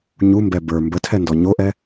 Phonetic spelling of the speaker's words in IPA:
ɲ u m b ɛ b ə˞ m b ə tʰ ɛ n d ɔ ɲ o ʔ ɛ

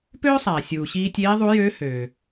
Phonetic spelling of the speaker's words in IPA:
p øː˥ sˤ æː˩ sʲ uː˩ ɕ iː˧ tʲ eː˧˥ ðˤ u˧˥ j øː˧˥ h øː˩

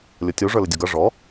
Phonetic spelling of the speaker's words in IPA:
lʲ o tʲ u ʐ ə˞ l ɪ dʲ u ɡ ʌ ʐ ɔ

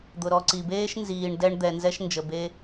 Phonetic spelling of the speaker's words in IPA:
d̪ ʊ˩ ɾ ɔ˨ ǀ i˩ b eː˥ ʃ n z iː˨ ɳ d ɛ˦ ɳ d̪ ɛ˨ n z ɛ˦ ʃ n d͡ʒ ə˨ b e˦

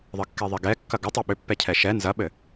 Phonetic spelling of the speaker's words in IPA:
ðˤ ɘ kː ɛ ðˤ i ɡ ɛ kː ɐ ɡ ʏ tˤ ɛ ɓ ʏ pː ɛ cʰ ɛ ʃ ɛ n z ɐ ɓ ɘ

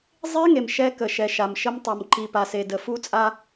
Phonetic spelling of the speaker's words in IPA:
zˤ e˦ ŋ e˨ m ʃ ɛ˦ k ə˨ ʃ ɛ˨ ʃ a˨ m ʃ ə˦ m tˤ ə˨ m ǃ i˨ p a˨ s e˨ d ə˨ f u˦ t͡sʼ a˦

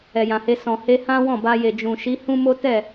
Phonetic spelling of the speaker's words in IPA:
ɛ˨ j ã˨ h e˧ s ɔ̃˨ h e˧ h ã˦ w ɔ̃˦˨ b a˧ j e˨ d͡ʒ ũ˨ ʃ i˨˦ h ũ˦ m o˦ t ɛ˦˨

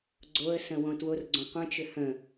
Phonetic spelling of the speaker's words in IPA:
ɡ͡ǀ o ə̯ s ə̃ w õ t w o r ɡ͡ǀ õ qʷ ə̃ t͡ʃ ʏ h ə̃

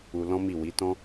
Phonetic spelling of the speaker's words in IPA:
u˧ l ɔ̃˦ m i˦˨ w i˨˦ t ɔ̃˦

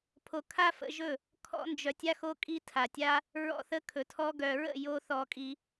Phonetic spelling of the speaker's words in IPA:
pʰ o˧ kʰ a˦ f ə̰˧ ʒ ɵ˦˨ | kʰ ɔ̰˦ n d͡ʒ œ˧ tʲ a˦ x o˧ kʼ i˧ tʰ a˨ tʲ a˦ | ɹ ɔ̰˦ θ ə˦ kʰ ɵ˨ tʰ ɔ˧ ɡ œ˨ ɹ ə̰˦˨ j o˦ θ ɔ˧ kʼ i˧

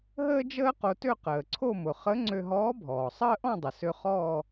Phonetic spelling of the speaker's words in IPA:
ɦ əː˥ d͡ʒ əː˥ q o˧ t ø˥˧ q əː˩ ǀʰ o˥˧ m ʊ˩ χ ə˧˥ ŋ͡ǀ ø˧ ɦ ɔː˧˥ bʱ ɔː˩ sˤ əː˥ ʔ ɔ̃˥˧ dˤ ə˩ s ø˧ χ ɔː˥˧

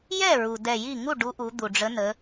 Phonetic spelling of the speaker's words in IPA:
j ɛ˥˩ ɹ u˩ d ɛ˧˩ j i˥˩ ŋ u˥˩ ɖ u˨˥ ʔ u˩˧ d̪ u˩ ɖ͡ʐ ə˨˥ n ə˩˧

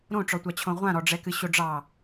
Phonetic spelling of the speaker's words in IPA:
ɾ õ ʈ͡ʂ ɔ tʷ ɑ t͡ɕʰ õ ʁʷ ã ɾ ɔ ɖ͡ʐ ɛ k ɨ ɕ o ɖ͡ʐ ɑ

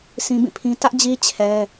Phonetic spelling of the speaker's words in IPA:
sʰ ĩ˦ b ĩ˦˨ pʰ ĩ˦ t ä˦ ʔ d͡ʑ i˦ t͡ɕʰ ɛ˦

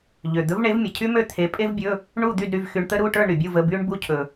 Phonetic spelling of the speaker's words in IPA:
ʎ ø˩ d̪ ɵ˨˥ v ɳ e˨˥ v mʲ ə˩ cʰ y˥ m ø˥˨ t̪ʰ e˨˥ pʼ e˥ v bʲ ɵ˧˥˧ | ɳ u˥˨ d̪ y˥˨ d ɾ y˧˥˧ v x y˧ ɳ t̪ ə˥ ɾ u˧˥˧ ʈ ə˞˥˨ ɳ ɾ y˩ bʲ u˥˨ v ə˧˥˧ b y˥ ɳ b u˧ cʰ ɵ˩

